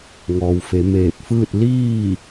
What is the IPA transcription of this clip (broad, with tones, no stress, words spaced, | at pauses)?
ŋɔː˩wfe˩˧ meː˧˩p̚fɯː˥˨t̚ liː˥˨